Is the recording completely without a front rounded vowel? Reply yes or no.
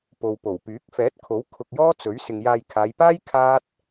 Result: no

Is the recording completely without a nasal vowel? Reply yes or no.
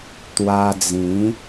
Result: no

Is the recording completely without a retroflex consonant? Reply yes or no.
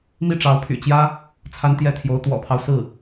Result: no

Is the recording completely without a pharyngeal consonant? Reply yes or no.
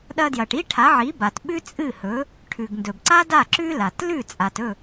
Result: no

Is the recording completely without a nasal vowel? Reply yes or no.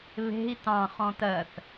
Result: no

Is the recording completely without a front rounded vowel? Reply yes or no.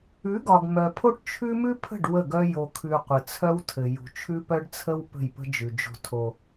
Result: no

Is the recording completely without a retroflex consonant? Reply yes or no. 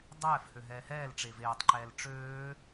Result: no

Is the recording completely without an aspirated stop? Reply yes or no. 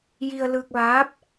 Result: yes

